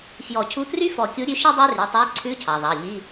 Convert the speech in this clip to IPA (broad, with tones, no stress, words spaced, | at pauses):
fjɔ˨˩˦cʰu˧˥˧try˥ fɔ˨˩˦kʲu˨˥ɾʲʉ˨˥ ʃi˥dˤæ˥ry˩˧˩tˤæ˧˥˧ ǀʰʉ˧˥˧cʰɑ˩ðˤɑ˩˧˩ ʎi˧˥˧